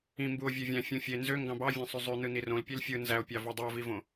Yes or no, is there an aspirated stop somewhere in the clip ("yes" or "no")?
no